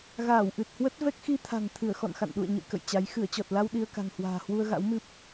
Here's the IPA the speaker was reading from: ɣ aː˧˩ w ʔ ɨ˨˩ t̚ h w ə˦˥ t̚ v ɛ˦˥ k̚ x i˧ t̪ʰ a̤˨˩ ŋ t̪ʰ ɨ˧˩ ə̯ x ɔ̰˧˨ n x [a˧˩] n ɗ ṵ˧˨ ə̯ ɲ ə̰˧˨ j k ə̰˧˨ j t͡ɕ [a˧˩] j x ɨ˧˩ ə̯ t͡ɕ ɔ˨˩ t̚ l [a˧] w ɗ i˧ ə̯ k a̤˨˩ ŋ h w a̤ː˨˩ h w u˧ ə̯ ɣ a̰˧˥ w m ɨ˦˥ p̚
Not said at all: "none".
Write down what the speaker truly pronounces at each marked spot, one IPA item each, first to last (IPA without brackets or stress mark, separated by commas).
a̰˧˨, a˨˦, a˧